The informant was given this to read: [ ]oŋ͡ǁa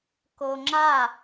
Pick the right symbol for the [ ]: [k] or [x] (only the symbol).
k